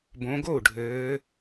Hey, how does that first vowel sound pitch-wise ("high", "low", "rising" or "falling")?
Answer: rising